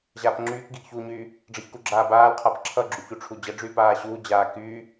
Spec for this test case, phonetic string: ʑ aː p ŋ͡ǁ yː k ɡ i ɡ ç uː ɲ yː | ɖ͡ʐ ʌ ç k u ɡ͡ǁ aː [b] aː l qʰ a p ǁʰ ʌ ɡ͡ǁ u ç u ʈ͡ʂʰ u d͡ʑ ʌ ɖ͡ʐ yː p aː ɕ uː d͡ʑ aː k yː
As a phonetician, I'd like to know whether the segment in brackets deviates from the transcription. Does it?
no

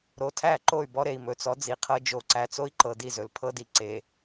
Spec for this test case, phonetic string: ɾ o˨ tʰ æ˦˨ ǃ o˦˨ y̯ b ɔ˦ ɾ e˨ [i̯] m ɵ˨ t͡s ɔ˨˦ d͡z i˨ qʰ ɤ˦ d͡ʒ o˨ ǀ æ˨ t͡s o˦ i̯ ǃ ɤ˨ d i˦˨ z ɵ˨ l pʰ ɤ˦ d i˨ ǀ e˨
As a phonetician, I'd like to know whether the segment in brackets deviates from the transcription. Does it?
no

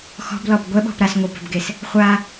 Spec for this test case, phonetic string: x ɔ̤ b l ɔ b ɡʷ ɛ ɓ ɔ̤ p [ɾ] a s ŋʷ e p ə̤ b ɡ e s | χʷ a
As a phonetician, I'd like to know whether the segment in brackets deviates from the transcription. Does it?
no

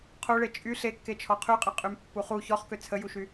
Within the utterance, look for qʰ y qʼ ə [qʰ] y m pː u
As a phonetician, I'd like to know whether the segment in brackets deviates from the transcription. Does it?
yes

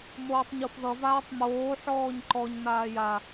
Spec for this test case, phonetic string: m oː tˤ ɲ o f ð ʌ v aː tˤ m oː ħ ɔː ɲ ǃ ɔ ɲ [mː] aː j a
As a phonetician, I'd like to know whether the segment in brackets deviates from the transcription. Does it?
yes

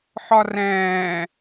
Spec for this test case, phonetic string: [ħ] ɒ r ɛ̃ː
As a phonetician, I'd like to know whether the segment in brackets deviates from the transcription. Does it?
no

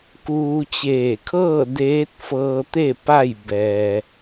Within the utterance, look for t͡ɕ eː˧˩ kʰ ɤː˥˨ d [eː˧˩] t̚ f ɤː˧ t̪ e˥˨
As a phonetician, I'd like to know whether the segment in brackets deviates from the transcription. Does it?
yes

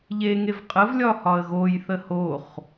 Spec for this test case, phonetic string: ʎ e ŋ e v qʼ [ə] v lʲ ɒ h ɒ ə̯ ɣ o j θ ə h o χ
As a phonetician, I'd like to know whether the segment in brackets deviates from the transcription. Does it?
no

